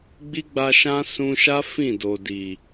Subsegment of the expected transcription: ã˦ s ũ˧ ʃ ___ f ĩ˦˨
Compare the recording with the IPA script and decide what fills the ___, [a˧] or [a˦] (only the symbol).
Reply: a˦